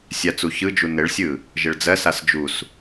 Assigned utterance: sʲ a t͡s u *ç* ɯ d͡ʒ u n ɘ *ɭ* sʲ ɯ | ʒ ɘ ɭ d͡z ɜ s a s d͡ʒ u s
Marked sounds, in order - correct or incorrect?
correct, correct

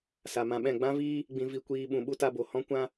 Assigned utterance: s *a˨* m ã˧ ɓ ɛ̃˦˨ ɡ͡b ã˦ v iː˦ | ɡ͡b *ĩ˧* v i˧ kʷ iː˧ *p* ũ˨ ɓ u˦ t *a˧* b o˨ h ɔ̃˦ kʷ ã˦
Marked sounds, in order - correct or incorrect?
correct, correct, incorrect: ɓ, correct

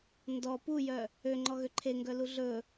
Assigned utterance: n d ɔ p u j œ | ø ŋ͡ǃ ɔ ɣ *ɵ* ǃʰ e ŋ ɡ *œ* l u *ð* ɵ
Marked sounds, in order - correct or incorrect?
incorrect: ø, correct, incorrect: ɮ

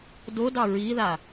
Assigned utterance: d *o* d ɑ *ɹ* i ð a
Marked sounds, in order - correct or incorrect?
correct, correct

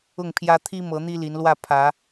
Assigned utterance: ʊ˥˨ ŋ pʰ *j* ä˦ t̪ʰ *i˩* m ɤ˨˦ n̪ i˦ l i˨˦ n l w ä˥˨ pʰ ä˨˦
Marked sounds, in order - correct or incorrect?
correct, incorrect: i˦

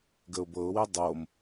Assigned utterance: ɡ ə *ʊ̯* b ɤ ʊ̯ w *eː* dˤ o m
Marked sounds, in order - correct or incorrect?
correct, incorrect: e

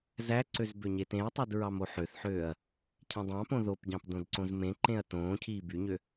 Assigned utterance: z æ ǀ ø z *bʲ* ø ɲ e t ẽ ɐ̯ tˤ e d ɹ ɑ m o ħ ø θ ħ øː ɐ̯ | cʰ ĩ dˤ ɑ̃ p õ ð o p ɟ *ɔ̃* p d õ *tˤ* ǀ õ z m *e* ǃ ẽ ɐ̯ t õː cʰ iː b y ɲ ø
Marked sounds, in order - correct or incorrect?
incorrect: b, incorrect: ɑ̃, incorrect: d, incorrect: ẽ

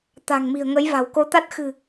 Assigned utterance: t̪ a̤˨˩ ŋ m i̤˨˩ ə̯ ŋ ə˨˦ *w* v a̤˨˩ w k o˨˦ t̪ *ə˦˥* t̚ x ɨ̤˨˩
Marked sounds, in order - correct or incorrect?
incorrect: j, incorrect: a˦˥

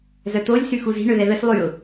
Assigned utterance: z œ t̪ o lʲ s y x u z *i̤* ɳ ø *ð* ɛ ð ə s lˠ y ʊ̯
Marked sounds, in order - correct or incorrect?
correct, correct

